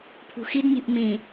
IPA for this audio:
pʰ ṳ x i d nʲ ṳ ʔ m ĩ

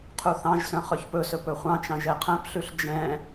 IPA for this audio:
qʰ u θ ɑ̃ ʒ s œ̃ χ œ ç p ɵ s ɵ p ɵ χʷ ɑ̃ t͡ʃ ɑ̃ ʒ ɛ qʰ æ̃ p ɬ ʉ ɬ d͡ʒ ɛ̃

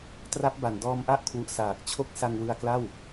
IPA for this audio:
t r a˦˥ p̚ b a˨˩ n d ɔː˧ m ʔ a˦˥ ʔ kʰ w u˨˩ ʔ s aː˨˩ k̚ t͡ɕʰ o˦˥ k̚ s a˧ ŋ w ɯ˧ a̯ k l a˥˩ w

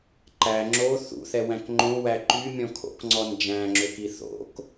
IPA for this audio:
ǃ æ ŋ͡ǁ o θ ṵ θ ɛ w æ̃ k ŋ͡ǃ õ w æ ǃ y mʲ ɔ̃ kʰ o̰ k ŋ͡ǀ ɔ n d͡ʒ æ̃ ŋ͡ǁ ø k i θ o̰ k

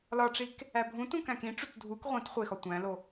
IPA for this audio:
l ɒ ʈ͡ʂ i k | æ bʱ ũ t ũ k æ̃ k ĩ ʈ͡ʂ u t dʱ u k ʁʷ ĩ t χʷ e x ɒ tʷ æ̃ l o

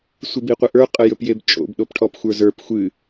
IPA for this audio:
sʷ ɨ b i qʷ ə ʔ ə˞ qʼ ə j ɵ p j e b t͡ʃʼ o̰ b ɗ o p ʈʰ ɔ p xʷ ə˞ z ə˞ p xʷ ɨ

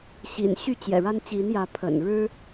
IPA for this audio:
ɕ ḭ˨˩ n ɕ y˥˨ t͡ɕ j ɛ̰˨˩ ɻ a˦ n t͡ɕ i˨˦ n j ä˨˦ pʰ ə̰˨˩ n ɻ ɻ̩˦

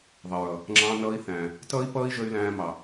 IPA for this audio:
ðˤ ʌ˨ ɹ ʌ˨ | ŋ͡ǁ ɑ̃˦ n ʌː˦ i̯ θ æ̃ː˨ | t ʌː˥ i̯ p ʌː˥ i̯ ʒ ə˦ y̯ l æ̃ː˦ m ɑ˨

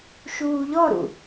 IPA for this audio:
ʃ uː ʎ ɔ ɾ ṵ

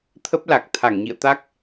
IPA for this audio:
t̪ʰ ə˦˥ p̚ l a˨˩ k̚ t̪ʰ a˧˩ ŋ ɲ ḭ˧˨ ə̯ t̪ a˦˥ k̚

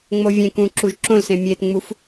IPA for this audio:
ŋ͡m o vʲ ẽ k ũ ǁ u ʒ ǁ õ l s ẽ mʲ e t ŋ͡m u f

